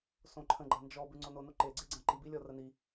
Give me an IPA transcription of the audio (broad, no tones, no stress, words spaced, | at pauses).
sõǃʰə̃ ɡ͡ǃɐnd͡ʒɔ bʉŋ͡ǀonono ǃeɡ͡ǀeɡ͡ǀɐ̃ ǃibilʲɔ rəni